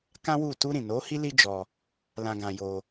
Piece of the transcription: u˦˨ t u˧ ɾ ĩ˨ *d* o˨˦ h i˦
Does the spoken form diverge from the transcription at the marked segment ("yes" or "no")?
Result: yes